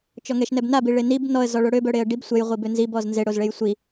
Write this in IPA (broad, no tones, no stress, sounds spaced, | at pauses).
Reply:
t͡ʃ ɔ ŋ ɛ ʃ n ɛ b n a b i ɭ e n i b n ɔ ə̯ z ɔ ɭ o ɽ ø b œ ɽ e ə̯ ɖ i b sʷ ɛ j ʁʷ i b ø n z i b ɔ z n z e ɽ o z ɭ e j sʷ i